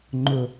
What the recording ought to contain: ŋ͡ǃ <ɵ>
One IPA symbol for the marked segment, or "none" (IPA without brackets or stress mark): ʊ